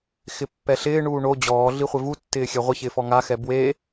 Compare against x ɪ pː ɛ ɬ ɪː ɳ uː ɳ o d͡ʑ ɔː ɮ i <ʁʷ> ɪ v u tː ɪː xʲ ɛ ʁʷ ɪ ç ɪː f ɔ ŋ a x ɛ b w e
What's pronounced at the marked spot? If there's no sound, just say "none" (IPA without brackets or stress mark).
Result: χʷ